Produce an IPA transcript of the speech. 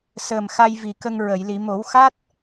səː˨˩mxa˧j vi˨˩kə˧ŋɹə˨˩˨j li˨˩˨mo˨˩˦wxa˦˥t̚

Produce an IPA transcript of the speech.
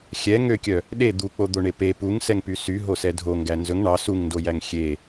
xʲɛ ŋøkʲœ | ɗe d̪uk͡pod̪oɳe pe puŋsɛŋpy sy ɦosɛdʱo ŋɡænzɵŋ ɳɑ suŋndojæŋ xʲe

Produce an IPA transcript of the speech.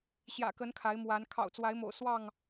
ɕjä̰˨˩kə˨˦n kʰa˨˦ɪ̯mwa˨˦n kʰɑ̰˨˩ʊ̯t͡swa˨˦ɪ̯mo̰˨˩ʊ̯ swɑ˥˨ŋ

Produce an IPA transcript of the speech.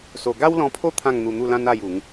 so˧ ɡa˦wlɔ̃˧pʰo˥˧ t̪ʰã˥˧ŋn̪u˧n̪u˥˧lã˦n a˥˧ju˨˦ŋ

